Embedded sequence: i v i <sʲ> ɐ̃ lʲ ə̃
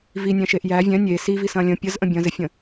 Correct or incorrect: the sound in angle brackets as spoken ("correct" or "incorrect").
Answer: incorrect